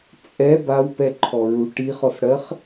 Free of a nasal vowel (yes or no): yes